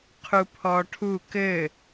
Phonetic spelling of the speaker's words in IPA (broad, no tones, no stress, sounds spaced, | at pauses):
qʰ u pʰ ɔ ʈʰ u k ɘ